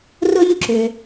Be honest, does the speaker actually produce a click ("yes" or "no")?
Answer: yes